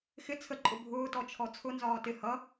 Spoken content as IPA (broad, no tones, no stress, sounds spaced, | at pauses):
x ɪ t͡sʰ ə ǃʼ ʊ bʱ ʊː t ɔ t͡ʃʰ ɔ t͡sʰ ʊ n z ɒː t ɪ h ʌ